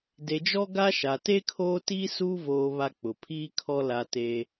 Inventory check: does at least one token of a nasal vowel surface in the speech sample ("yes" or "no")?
no